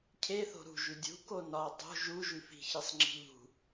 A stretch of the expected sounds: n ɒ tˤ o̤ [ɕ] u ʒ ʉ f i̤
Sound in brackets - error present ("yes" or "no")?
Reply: yes